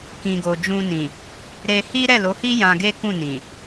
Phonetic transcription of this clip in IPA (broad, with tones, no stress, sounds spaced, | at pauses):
k ĩ˨ ɡ o˨ d͡ʒ ũ˧ n ĩ˨ | ɾ e˧ h i˦ ɾ ɛ˦˨ l o˨˦ h i˦ j ã˧ ɡ e˦ k ũ˦˨ n ĩ˨